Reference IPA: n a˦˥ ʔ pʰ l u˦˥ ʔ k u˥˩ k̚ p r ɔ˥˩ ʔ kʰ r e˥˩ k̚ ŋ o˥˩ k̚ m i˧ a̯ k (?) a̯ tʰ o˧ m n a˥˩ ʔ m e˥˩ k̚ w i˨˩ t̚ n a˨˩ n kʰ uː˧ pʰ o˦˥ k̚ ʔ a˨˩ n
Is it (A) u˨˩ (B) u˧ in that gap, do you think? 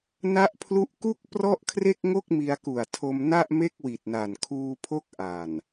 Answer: A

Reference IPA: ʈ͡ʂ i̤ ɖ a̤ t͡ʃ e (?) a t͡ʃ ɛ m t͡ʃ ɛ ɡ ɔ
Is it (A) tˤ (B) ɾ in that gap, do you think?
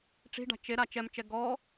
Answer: B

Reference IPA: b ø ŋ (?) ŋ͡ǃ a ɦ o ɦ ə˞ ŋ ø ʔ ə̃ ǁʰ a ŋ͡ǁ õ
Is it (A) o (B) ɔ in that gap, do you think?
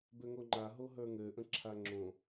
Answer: A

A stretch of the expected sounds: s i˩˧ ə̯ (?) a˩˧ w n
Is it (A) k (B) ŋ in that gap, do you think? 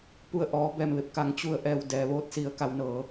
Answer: A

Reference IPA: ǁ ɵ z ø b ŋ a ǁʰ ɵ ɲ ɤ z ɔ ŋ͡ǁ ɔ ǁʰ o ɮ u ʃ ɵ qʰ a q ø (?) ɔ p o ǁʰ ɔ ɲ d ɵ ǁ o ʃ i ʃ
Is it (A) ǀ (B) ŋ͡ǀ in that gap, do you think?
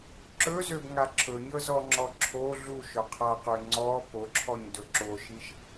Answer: B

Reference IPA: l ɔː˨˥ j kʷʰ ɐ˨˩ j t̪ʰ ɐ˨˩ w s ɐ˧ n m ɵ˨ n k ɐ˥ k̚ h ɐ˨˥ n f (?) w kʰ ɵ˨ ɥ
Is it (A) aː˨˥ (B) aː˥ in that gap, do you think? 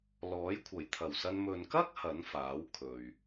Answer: A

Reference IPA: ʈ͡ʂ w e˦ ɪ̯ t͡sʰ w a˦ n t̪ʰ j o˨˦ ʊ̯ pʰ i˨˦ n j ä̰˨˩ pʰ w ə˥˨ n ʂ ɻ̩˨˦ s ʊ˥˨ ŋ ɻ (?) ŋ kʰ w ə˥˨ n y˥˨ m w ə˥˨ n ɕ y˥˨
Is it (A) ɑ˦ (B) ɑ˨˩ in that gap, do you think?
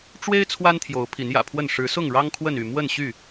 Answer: A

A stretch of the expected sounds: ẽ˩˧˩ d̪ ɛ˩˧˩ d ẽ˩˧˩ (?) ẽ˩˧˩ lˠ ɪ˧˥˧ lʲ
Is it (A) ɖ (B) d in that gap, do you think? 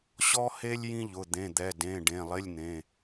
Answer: A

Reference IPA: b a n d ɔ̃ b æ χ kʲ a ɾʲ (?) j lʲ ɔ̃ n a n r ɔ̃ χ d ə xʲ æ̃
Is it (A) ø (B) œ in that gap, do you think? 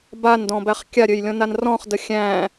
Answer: A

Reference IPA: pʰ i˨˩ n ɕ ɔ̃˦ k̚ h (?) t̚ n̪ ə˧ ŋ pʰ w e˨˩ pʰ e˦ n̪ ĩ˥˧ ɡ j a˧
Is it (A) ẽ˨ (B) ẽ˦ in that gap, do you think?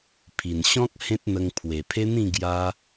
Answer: B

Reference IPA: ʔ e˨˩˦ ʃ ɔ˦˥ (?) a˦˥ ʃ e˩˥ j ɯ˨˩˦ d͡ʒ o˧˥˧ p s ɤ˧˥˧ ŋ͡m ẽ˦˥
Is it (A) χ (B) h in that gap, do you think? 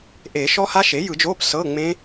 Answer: B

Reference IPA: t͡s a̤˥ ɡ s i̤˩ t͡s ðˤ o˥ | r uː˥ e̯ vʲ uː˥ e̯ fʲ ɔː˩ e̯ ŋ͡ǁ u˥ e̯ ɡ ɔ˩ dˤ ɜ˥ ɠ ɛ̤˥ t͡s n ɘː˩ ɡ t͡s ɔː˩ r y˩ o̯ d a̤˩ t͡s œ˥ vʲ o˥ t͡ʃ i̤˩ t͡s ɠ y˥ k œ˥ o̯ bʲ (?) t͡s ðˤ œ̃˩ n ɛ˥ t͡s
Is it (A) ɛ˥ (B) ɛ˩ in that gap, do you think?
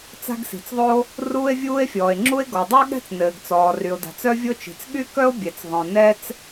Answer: B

